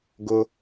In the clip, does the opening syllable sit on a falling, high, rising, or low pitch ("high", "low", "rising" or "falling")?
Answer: low